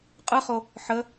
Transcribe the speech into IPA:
qʼ ɯ χ o | ħ ə

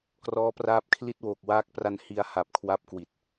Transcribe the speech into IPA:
k r ɔː˦˥ p r aː˦˥ p̚ kʰ l i˥˩ t̚ w oː˨˩ k̚ w aː˦˥ k̚ p r a˧ n h i˧ a̯ h a˨˩ p̚ kʰ w a˦˥ p̚ k w i˨˩ t̚

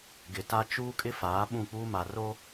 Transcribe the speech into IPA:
ɡ ɪ˨ t a˦ t͡ʃ uː˦ kʼ ɪ˦ f aː˨˦ ɓ ũ˦˨ k͡p uː˦ m a˨ r o˦

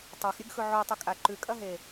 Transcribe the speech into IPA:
tˤ a x ɾʲ ɨ ɡ x ɵ ʕ o tˤ ɨ kʼ a ǃ ʉ kʼ ɐ ɦ e

